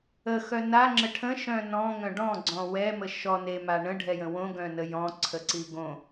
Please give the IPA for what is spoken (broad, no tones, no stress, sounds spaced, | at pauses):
ə x œ n a ŋ͡ǁ ə ʈʰ ə̃ ʃ œ̃ n ɔ̃ ŋ œ̃ ɖ ɔ̃ ɡ͡ǀ ɔ̃ w ɛ m ə ʃ ɔ n e m a ɳ ə̃ ɖʱ ɛ j ə̃ w õ ɡ œ̃ n ə j ɔ̃ ǀʰ ə ǀ i ɡ õ